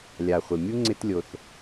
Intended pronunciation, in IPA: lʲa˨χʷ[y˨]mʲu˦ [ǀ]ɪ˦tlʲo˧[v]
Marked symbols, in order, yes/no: no, no, no

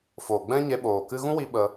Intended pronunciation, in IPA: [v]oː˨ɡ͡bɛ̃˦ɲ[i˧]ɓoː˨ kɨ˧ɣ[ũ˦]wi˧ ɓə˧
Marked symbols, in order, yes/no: no, no, yes

